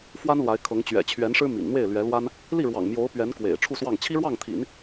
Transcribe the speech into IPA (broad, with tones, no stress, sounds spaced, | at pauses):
f w a˥ n l w a˧˥ ɪ̯ kʰ ɤ˧˥ ŋ t͡ɕ ɥ ɛ̰˨˩ t͡ɕʰ ɥ ɛ˧˥ n ʂ ɻ̩˥ m ḭ˨˩ n n̪ w e˥˩ ɪ̯ l ɥ ɛ˧˥ l w a˥ n | l i˥˩ ɻ w ɑ̰˨˩ ŋ m j o˧˥ ʊ̯ p ɥ ɛ˧˥ n k w ḛ˨˩ ɪ̯ ʈ͡ʂʰ u˥˧ s w ɑ˥˩ ŋ t͡ɕʰ i˥ ɻ w ɑ˥˩ ŋ t̪ʰ ḭ˨˩˦ n